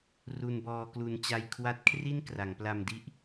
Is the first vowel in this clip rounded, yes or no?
yes